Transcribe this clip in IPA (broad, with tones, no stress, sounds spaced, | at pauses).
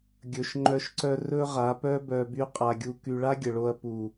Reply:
ɡʲ ɵ˨ ʃ ŋ͡ǃ œ˧ ʃ ǀ œ˧ r ɵ˦ ʁ a˨˦ p œ˦ b œ˧ b y˦ qʼ a˧ ɡʲ u˧ k y˧ ɭ a˦ ɡʲ ə˨ ɭ o˧ ɐ̯ p u˨